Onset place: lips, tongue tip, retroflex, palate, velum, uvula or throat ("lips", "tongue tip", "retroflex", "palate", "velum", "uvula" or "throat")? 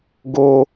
velum